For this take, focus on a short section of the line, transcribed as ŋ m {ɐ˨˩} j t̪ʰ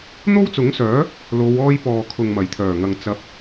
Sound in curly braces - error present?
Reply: no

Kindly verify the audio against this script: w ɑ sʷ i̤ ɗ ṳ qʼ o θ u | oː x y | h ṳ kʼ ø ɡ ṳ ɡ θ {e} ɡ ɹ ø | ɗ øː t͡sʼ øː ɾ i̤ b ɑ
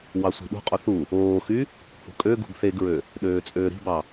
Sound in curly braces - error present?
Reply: no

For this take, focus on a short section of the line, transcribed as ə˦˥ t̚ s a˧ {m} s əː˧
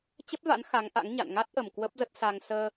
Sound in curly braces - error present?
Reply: yes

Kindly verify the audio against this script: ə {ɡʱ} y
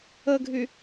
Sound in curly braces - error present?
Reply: no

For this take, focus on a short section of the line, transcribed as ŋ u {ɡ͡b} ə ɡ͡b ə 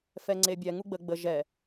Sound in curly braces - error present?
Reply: no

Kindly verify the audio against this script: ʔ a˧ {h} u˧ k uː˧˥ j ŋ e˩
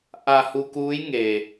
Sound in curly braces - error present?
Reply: no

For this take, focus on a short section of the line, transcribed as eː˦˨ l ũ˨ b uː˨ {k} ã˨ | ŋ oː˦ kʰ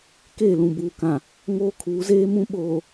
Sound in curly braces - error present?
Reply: no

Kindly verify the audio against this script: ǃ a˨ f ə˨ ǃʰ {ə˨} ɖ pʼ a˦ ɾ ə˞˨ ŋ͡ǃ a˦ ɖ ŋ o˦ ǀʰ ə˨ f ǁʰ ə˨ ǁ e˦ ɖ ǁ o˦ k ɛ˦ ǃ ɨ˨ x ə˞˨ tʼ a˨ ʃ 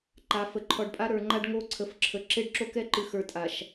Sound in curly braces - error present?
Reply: yes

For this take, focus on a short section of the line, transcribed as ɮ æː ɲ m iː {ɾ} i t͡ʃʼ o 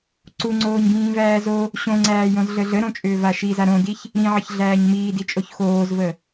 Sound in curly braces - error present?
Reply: yes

